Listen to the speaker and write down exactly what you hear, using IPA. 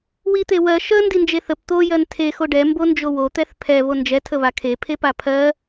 wit̪ewɜ ʃə ndind͡ʒeθəp t̪o jɜntʰe xoɖɛ mbond͡ʒowo t̪ɛθpʰɛ βond͡ʒɛ tʰəβakʰe pʰepapʰɜ

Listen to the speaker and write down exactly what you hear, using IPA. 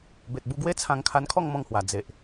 be˨t̚bu˧ɡwe˦t͡sʰã˧ŋ kʰa˧nkʰɔ˥˧ŋmɔ̃˧ŋhwa˨˩ d͡ze˨ʔ

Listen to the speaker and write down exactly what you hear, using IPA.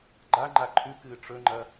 ɡ͡ǃaŋ͡ǃa ǃʰʉkɨː ʈ͡ʂɵŋ͡ǃɐ

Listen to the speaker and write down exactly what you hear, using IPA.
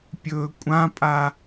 pʲɵːkʷʼãpʼa

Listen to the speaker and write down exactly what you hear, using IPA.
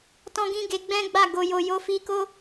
tɔ̃˦ ɡĩ˦ɡe˧ɡ͡bɛ̃˦ɡ͡ba˦˨ ɡo˨jo˨ jo˧fi˧ko˦

